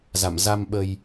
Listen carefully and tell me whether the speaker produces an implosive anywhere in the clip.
yes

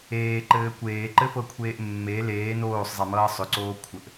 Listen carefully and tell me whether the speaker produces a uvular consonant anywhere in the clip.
no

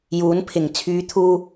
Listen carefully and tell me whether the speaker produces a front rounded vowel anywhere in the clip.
yes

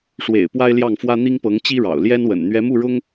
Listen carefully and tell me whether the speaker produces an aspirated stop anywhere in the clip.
no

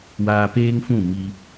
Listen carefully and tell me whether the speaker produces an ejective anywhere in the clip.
no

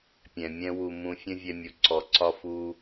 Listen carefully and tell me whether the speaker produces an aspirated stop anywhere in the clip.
no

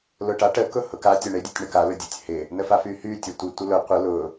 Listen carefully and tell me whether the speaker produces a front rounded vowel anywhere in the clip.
yes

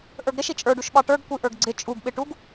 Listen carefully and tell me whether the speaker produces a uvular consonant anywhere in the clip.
no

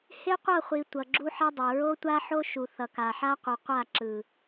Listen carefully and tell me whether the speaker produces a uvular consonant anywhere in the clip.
yes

